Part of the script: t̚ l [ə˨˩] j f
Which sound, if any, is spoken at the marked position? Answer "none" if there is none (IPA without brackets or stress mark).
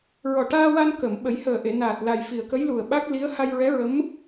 a˨˩